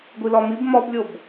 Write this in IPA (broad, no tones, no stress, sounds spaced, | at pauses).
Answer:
ɡʷ i l ɒ m i b m ɒ b lʲ o b